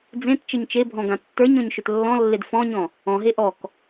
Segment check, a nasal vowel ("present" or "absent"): present